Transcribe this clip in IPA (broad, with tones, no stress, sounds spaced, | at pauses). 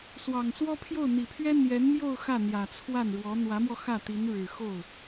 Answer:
s w ɑ˨˩ ŋ s w ɔ˥ pʰ j o˥˩ ʊ̯ n̪ i˨˩ pʰ ɥ ɛ˥ n̪ j ɛ˧˥ n m j o˥˧ ʊ̯ x ä˥˩ n̪ j ä˨˩ t͡sʰ w a˥˩ n ɻ w ɔ˧˥ n̪ w ä˧˥ m w ɔ˧ x ä˥˩ t̪ i˧˥ n ɻ ɻ̩˨˩ x o˥˩ ʊ̯